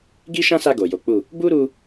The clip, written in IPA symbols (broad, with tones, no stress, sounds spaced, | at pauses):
ɡ i˦ ʃ ã˦ s a˧ ɡ o˨ j o˨˦ k͡p u˦˨ | b u˦ ɾ u˧